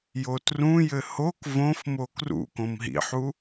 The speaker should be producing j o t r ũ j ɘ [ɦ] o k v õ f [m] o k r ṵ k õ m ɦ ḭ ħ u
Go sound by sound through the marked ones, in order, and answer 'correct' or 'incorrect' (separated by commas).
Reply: incorrect, correct